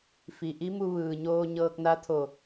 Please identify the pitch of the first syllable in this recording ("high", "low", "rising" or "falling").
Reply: low